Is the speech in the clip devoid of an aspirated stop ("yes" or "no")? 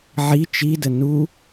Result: yes